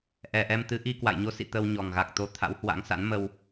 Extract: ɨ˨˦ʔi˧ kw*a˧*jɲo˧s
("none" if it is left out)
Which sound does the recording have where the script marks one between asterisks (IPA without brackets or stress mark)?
a̰˧˨